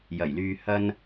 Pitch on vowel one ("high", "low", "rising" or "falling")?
low